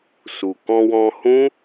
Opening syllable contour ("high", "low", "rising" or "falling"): low